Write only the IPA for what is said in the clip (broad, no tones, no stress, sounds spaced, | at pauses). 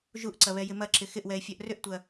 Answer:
ʒ u ʔ ǀ ɐ β ɛ j ɪ m ɐ ǁ ɪ x ɪ ʔ w ɛ ɪ̯ fʲ œ ʔ r ʏ ʔ tʷ ɐ